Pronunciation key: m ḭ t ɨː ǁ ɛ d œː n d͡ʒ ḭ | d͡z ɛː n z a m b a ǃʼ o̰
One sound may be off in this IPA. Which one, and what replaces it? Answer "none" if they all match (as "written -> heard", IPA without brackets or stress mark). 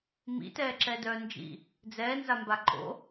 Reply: ɨː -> ɛː